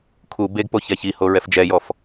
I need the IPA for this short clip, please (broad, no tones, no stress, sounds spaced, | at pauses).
kʰ u b e ɡ p o ç ɛ ç i h o ɹ ɛ f d͡ʒ ɛ j ɔ f